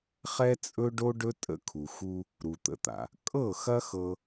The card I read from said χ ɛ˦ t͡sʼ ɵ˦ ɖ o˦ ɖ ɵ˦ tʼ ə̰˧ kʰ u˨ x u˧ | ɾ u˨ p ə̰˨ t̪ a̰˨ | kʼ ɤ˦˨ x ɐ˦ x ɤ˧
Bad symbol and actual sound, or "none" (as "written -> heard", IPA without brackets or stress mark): p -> t̪